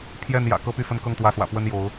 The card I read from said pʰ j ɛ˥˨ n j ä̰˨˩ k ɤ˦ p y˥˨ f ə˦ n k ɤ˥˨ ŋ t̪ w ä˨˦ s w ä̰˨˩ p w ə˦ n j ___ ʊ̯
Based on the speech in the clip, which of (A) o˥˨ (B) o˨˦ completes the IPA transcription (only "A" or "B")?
B